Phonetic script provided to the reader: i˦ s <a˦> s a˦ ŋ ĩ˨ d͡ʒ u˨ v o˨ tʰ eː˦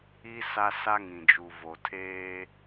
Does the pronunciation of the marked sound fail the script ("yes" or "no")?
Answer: no